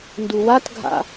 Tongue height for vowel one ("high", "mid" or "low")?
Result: high